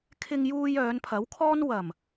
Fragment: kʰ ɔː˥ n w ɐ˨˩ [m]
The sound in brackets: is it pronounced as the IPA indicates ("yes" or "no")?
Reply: yes